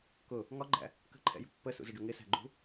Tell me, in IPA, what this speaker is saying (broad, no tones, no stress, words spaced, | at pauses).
kʊ | ŋɒɡ͡ǃæ̰ | kə̤ǃʰɛ̰jṳ pːəsṵzəɖʊ ŋɪsæ̤ɡ͡ǃṳ